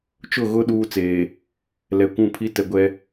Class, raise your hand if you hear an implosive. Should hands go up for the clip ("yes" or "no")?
yes